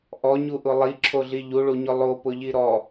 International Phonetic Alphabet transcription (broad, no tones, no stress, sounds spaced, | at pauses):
ʔ ɔ ɲ u ʔ ʊ lˠ i ǁʰ o ɮ i ʎ u ɭ u ɲ ʊ lˠ o p ʊ ʎ i ɾ ɔ